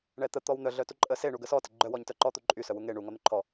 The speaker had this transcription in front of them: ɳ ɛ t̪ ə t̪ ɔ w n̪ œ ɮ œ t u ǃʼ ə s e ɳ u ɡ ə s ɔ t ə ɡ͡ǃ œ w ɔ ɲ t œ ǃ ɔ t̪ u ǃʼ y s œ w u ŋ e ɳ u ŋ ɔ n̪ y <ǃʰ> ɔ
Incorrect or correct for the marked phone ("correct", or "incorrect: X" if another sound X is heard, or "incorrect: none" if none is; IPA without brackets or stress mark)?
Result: correct